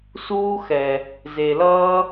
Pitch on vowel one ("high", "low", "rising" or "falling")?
high